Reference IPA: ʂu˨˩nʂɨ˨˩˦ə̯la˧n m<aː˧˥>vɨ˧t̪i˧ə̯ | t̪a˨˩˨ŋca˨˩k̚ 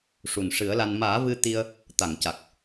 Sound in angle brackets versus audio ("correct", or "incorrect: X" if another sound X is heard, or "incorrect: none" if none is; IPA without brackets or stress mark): incorrect: aː˨˩˦